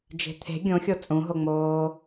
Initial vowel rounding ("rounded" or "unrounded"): unrounded